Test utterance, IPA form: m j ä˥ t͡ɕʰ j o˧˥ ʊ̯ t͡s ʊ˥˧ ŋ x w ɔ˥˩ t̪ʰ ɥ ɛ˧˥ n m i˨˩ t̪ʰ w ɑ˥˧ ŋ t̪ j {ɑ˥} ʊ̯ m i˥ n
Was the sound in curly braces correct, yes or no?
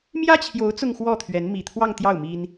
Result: no